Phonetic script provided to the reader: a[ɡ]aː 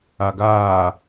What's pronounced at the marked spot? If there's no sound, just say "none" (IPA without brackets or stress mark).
ɡ